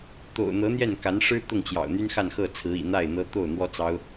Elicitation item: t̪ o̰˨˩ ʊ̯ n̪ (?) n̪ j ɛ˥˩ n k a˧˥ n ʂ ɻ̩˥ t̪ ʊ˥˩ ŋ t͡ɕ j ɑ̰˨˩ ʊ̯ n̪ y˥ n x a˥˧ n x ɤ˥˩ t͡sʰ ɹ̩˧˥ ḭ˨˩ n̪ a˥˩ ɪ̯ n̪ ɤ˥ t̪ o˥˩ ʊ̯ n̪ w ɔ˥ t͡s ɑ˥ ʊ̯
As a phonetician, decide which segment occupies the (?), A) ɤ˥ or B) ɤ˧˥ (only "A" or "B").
B